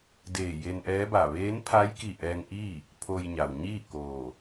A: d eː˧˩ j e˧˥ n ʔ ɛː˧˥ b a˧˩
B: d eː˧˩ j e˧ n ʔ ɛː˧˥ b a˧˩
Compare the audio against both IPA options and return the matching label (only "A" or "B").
B